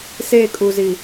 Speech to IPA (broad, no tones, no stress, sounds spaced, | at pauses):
s e kʼ u z i